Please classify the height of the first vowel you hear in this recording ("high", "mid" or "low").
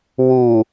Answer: high